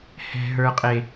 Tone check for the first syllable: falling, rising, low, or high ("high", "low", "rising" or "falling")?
low